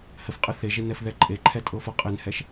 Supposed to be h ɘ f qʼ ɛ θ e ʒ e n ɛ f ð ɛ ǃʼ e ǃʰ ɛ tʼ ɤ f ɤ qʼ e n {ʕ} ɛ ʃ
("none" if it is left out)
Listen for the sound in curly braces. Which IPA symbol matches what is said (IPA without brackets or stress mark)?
h